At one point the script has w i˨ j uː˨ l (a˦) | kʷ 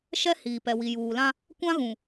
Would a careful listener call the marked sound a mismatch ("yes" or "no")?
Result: yes